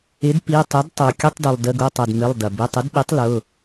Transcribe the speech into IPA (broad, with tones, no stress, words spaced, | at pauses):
ɪ˩˥dpi˩˧˩tˤʏ˩˥d tˤu˩ kʲʊ˧˥˧tˤdu˩lˠ də˩˧˩ɡʊ˩˧˩tˤɐ˩d mɪ˩˧˩lˠdɐ˩ bɪ˩˧˩tˤɪ˩˥dɓi˩˥tˤ lʊ˩˧˩